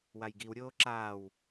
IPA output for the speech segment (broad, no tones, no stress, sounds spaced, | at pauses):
w a j ɡ i w ɾʲ oː ǁ aː w